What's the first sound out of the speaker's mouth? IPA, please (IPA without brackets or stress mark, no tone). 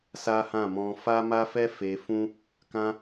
s